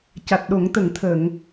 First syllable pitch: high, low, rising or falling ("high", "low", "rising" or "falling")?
low